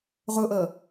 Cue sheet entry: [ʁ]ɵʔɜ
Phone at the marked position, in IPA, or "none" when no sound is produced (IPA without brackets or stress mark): ʁ